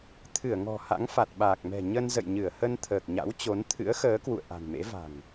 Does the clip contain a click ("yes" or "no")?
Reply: no